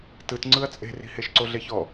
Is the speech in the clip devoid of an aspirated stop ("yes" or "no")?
yes